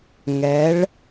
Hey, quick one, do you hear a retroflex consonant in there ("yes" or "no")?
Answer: yes